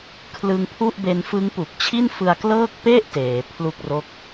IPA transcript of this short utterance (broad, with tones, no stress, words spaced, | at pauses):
kʰlɯ˧ŋpʰu˥˩ʔbe˧nfɯ˦˥ŋ pu˨˩k̚t͡ɕʰi˥˩nfɯ˧a̯klɤː˥˩k̚ pe˥˩ʔ teː˩˦pʰlu˥˩k̚ro˥˩k̚